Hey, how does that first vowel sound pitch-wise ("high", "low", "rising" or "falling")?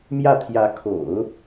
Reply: falling